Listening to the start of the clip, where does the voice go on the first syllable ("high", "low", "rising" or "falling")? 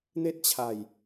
high